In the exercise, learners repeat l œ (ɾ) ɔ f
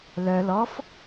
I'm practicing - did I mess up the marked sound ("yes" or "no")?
yes